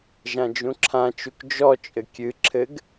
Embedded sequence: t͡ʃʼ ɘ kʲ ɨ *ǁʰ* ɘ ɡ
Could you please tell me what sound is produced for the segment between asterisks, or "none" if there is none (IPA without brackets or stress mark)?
ǁʰ